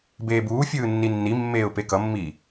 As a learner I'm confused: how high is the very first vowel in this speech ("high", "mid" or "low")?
mid